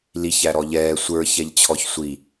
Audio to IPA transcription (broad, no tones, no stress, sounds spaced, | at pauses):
l i ç æ ɾ ɔ ʎ ɛː sʷ ə˞ ç ɛ ʎ t͡ɕʰ ɔ ç sʷ i